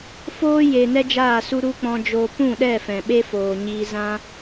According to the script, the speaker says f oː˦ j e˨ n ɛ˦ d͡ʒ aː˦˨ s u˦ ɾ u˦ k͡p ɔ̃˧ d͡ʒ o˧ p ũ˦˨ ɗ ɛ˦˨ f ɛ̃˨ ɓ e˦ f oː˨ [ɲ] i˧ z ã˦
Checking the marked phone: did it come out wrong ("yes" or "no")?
no